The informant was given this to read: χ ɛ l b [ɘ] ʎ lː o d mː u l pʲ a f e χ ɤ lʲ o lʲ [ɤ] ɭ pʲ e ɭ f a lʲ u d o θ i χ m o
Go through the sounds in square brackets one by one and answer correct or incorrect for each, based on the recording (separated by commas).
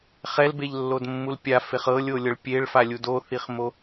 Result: incorrect, correct